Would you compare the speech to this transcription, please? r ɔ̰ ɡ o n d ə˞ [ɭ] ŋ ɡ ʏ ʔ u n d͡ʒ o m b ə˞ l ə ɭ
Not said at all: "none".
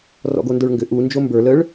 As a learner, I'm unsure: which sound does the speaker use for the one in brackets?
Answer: ɭ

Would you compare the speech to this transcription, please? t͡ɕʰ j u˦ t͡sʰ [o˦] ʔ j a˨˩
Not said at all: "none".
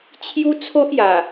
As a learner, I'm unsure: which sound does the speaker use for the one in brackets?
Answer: o˦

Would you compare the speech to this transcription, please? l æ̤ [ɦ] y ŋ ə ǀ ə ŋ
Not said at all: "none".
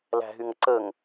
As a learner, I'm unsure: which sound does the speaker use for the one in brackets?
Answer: ɦ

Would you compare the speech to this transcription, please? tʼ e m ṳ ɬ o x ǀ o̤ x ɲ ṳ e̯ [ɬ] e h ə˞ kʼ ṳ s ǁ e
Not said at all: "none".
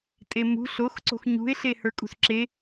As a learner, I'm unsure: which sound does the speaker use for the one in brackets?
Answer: ɬ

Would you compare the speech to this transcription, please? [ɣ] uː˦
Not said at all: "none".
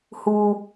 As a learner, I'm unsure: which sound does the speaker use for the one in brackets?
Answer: h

